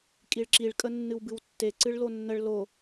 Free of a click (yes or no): no